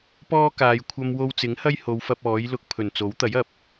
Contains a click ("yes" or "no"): no